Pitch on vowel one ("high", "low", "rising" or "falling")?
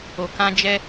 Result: low